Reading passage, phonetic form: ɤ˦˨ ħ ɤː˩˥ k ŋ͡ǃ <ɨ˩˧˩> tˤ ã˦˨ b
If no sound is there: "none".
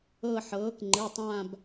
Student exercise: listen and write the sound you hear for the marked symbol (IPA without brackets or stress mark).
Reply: ɨ˩˧˩